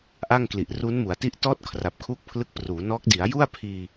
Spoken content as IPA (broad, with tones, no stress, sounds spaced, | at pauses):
ʔ a˥˩ ŋ k l i˨˩ ʔ r u˦˥ n m u˩˦ a̯ t i˦˥ ʔ t ɔː˦˥ t̚ kʰ r a˨˩ p̚ kʰ uː˦˥ k̚ pʰ l ɯ˦˥ k̚ p r uː˩˦ n ɔː˦˥ k̚ d i˩˦ a̯ j u˥˩ a̯ pʰ iː˧